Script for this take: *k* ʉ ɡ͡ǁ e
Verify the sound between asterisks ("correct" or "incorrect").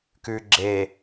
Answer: correct